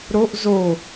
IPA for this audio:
ɾ o ʔ z o

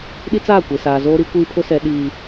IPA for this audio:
ɗ i˦ t͡s aː˦˨ kʷ e˨ s aː˨ z oː˦ ɾ i˦ kʷ iː˦ pʰ ʊ˦ s ɛ˨ ɗ iː˨

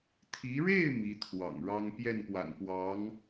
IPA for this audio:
t̪ʰ i˧˥ ɻ e˥˩ ɪ̯ m i˧˥ t̪ʰ w ɑ̰˨˩ ŋ ɻ ɑ˥ ŋ p j ɛ˥˩ n p w a̰˨˩ n p w ɑ˧˥ ŋ

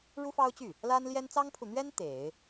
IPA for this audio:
ɻ u˥ f ɑ˥ ʊ̯ t͡ɕ y˥˩ | l a˥ n l j ɛ˥ n t͡s ɑ˥ ŋ pʰ u˨ n̪ ɥ ɛ˥ n t̪ e˨˩˦ ɪ̯

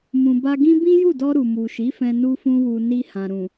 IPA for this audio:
m ũ˨ b a˧ ɡ ĩ˦ b ĩ˦ j u˦˨ d ɔ˧ ɾ u˨ m u˨ ʃ i˨˦ f ɛ̃˧ n u˦ f ũ˦ w u˧ n i˧ h ã˨ ɾ ũ˨

